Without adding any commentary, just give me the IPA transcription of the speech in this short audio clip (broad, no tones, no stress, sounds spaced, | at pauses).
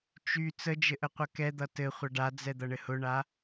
t͡ʃ y t͡s ə d͡ʒ ɘ ʔ ə qʷ ʌ k ɛ d̪ ʌ t ɘ χʷ ʌ ɖ a d͡z ɛ d̪ ʌ ɳ ɘ h ʊ ɳ a